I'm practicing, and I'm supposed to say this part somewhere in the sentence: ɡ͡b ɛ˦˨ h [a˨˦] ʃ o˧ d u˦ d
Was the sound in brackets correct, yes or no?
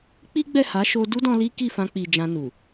yes